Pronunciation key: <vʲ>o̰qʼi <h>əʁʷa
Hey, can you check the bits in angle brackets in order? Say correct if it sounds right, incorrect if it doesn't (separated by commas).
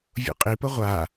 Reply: correct, incorrect